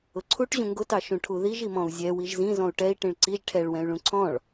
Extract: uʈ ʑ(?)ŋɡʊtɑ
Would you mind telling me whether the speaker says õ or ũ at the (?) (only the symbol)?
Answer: ũ